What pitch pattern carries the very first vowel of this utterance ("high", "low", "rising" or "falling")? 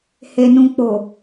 low